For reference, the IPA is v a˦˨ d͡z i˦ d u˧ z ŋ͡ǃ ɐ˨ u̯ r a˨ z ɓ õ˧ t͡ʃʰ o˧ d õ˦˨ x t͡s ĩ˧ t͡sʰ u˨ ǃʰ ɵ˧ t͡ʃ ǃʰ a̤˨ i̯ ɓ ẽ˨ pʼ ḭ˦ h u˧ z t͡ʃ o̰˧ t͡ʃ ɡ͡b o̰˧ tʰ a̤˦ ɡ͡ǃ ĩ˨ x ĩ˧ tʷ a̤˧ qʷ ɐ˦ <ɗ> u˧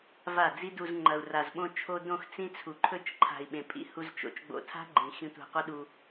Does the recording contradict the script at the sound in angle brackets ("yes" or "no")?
no